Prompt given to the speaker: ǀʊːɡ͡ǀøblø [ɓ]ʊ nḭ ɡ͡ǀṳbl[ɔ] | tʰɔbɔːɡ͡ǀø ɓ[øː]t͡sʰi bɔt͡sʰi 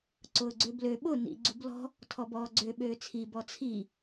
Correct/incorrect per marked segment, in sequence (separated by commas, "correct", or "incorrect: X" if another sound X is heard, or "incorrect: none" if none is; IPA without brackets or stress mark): correct, incorrect: ɔ̤, correct